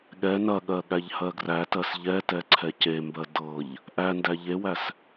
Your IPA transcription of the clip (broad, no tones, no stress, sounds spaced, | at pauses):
ɠ ɛ n ɐ ɠ ɜ ɠ æ ʎ h ɜ ɡ r æ t ɜ s ʎ ɛ t ɛ ǀʰ ɛ c e m b ɜ d ɤ ʎ | ʔ æ n d æ ʎ e w æ s